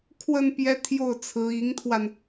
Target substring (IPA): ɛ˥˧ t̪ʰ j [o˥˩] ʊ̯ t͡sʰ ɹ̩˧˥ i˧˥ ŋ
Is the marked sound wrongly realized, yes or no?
no